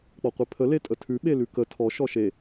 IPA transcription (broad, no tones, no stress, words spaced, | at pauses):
k͡pɔqʷepʰə letʼətʰʉ ɓelʉkə tʰɔ ʃɔʃe